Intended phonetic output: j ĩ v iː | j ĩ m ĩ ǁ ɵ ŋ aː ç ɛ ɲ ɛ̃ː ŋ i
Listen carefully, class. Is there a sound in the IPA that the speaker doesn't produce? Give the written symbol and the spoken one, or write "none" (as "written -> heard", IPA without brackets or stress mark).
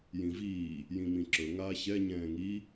none